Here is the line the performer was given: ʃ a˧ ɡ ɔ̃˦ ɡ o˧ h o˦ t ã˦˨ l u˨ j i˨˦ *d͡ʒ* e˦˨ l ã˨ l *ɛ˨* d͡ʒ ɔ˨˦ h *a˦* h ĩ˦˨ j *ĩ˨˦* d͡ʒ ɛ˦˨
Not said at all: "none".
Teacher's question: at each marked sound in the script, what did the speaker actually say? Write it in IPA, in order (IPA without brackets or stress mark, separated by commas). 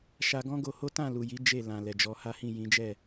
d͡ʒ, ɛ˨, a˦, ĩ˨˦